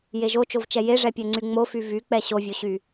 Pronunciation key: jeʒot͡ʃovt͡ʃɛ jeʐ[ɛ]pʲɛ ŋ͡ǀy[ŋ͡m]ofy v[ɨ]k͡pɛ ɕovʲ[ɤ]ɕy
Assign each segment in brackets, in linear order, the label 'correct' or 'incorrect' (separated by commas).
correct, correct, incorrect, incorrect